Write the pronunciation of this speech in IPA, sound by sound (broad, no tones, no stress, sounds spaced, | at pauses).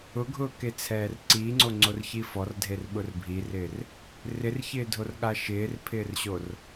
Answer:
ʊ ɡʱ ʊː k e t͡sʰ ɛː r ǀ iː ŋ͡ǀ o ŋ͡ǀ o r ç i f ɔ r dʱ e r ɓ ʊ r bʱ i r ɪː r | r ɪ r ç ɪː dʱ o r ɠ a ʃ ɪː r pʰ ɪː r ɕ o r